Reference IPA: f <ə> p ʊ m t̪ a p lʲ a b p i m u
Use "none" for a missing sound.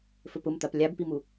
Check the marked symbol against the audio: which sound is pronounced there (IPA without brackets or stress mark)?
ɵ